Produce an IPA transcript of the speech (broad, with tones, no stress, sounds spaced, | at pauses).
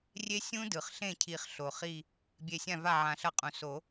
rʲ e˦˥ sʲ ũ˦˥ d ɯ˩ χ ɬ ẽ˥˩ cʰ i˨˩˦ χ ɬ o˩ χ i˧˩ | bʲ e˧˩ sʲ ã˥˩ v a˥˩ ʕ ã˧˩ ɬ ʌ˥˩ qʼ ũ˩ s o˨˩˦